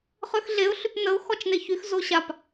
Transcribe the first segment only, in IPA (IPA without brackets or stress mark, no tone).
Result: χ